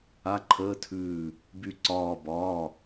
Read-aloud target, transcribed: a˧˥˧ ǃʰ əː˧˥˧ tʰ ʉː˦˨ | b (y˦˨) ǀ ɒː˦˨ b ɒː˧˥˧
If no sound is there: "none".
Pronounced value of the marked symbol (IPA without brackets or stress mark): y˦˨